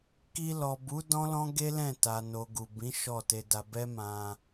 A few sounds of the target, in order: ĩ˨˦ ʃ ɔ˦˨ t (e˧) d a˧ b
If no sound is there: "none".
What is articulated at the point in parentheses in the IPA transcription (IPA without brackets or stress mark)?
e˧